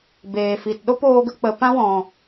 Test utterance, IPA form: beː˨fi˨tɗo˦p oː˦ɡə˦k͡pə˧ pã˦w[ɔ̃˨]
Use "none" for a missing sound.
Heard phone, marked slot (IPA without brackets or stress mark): ɔ̃˨